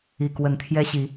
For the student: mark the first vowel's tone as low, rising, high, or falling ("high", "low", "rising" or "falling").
low